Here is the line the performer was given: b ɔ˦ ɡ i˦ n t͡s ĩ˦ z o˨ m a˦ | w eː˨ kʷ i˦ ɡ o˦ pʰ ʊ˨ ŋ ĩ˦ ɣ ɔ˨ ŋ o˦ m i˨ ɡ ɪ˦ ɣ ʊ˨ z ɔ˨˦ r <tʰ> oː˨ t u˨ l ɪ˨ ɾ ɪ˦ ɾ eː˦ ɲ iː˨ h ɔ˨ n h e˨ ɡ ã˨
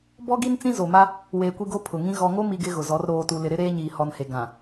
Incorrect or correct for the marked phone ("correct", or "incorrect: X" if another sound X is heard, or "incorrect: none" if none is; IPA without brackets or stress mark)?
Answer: incorrect: ɾ